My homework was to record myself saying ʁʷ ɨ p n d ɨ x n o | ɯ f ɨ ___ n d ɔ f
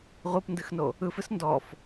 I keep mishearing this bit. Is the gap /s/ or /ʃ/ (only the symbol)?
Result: s